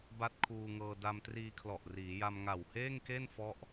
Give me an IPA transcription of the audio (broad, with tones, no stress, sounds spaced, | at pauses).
b a˥˩ t̚ kʰ uː˧ ŋ ɤː˧ d a˧ m t r iː˧ kʰ l ɔ˨˩ ʔ r iː˩˦ j a˧ m ŋ a˨˩ w h eː˥˩ ŋ k e˥˩ n f ɔ˦˥ ʔ